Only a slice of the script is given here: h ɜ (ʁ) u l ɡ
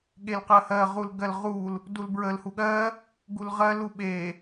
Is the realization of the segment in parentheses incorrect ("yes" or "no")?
no